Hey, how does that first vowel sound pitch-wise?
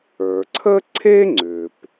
low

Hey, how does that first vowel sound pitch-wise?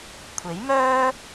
rising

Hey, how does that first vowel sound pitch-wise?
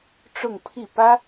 falling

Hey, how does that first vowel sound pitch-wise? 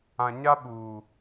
low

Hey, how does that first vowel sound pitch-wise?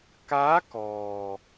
rising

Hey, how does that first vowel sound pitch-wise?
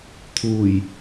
low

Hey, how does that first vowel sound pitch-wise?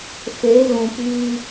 rising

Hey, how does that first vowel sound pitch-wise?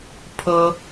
high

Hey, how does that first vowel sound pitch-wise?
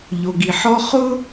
low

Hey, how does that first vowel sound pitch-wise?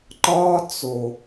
high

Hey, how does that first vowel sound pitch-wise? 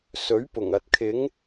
rising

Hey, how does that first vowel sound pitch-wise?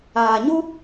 low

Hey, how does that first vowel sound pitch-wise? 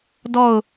falling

